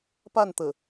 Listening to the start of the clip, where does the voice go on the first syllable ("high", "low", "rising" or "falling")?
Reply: falling